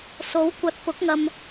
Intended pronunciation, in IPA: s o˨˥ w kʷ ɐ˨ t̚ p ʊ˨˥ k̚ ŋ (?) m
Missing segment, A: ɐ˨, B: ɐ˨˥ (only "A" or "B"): A